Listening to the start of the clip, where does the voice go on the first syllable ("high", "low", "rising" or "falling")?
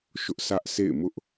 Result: high